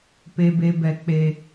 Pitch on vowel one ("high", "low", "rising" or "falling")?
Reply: low